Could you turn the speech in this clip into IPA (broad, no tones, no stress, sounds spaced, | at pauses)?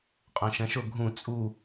qʼ ɛ̃ ʃ ɛ̃ ʃ ʊ ɡʱ ũ t͡sʼ u